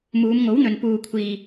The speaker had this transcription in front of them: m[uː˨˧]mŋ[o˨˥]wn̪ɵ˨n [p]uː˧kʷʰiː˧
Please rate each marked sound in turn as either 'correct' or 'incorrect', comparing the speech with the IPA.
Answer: correct, correct, correct

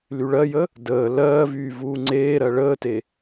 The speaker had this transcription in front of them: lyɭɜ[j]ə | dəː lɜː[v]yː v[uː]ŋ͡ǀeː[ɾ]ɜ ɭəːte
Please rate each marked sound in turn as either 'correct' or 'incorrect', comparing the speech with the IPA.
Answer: correct, correct, correct, correct

